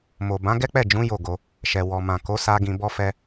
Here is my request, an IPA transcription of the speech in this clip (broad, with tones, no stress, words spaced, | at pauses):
mo˨bã˨˦ ɡɛ˦k͡pɛ˦˨d͡ʒũ˨˦ jo˦˨ɡo˧ | ʃɛ˨ wɔ˨mã˨ko˨˦sa˧ ɡĩ˧bɔ˦fɛ˦